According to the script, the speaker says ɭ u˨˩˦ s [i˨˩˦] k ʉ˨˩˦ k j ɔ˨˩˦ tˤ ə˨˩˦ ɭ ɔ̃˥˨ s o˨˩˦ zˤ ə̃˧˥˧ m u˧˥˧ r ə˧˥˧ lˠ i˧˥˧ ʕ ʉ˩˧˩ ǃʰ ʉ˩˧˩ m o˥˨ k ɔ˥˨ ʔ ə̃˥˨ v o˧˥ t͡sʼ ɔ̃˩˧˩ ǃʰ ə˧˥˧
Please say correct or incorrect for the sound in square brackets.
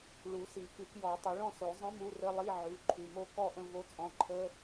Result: correct